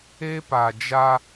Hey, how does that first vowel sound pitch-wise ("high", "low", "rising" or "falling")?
high